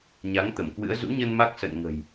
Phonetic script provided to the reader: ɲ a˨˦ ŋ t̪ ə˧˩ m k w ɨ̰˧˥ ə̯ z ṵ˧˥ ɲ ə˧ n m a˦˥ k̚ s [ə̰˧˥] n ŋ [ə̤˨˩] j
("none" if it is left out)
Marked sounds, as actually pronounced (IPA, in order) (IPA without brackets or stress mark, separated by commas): ə̰˧˨, ə̤˨˩